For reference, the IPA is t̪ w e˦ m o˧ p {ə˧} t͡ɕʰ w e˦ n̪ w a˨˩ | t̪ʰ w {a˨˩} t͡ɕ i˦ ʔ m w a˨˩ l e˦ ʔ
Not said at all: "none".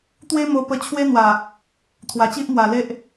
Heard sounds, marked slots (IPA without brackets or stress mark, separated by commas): ə˧, a˨˩